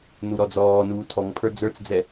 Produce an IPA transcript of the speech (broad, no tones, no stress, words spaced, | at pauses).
nuɾɔd͡zɔːnuː tʰɔŋpʰə˞ d͡zə˞t͡sd͡zɛ